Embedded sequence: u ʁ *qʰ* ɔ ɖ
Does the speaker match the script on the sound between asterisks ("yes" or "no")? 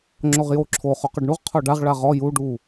yes